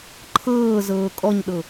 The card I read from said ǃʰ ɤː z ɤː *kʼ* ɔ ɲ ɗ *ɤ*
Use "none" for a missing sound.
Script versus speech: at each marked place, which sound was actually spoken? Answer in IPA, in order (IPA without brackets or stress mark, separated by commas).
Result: kʼ, ɤ